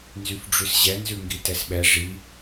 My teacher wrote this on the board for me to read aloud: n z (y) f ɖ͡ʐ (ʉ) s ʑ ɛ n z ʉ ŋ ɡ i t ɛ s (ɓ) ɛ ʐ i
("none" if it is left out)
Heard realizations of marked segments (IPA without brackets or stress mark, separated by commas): y, ʉ, ɓ